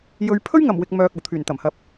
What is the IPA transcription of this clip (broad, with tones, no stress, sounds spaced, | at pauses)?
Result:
j ɵ˨˧ ɥ pʰ ɵ˥ ɥ ŋ ɐ˨˩ m w ɪ˨ k̚ m œː˨ k̚ ɐ˨˩ w t̪ʰ yː˨˩ n t̪ ɐ˨˩ m h ɐ˧ p̚